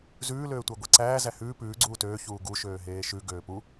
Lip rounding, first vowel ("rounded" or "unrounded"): rounded